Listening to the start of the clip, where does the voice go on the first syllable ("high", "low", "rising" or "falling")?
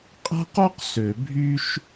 high